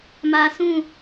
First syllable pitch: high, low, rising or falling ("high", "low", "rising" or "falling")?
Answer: low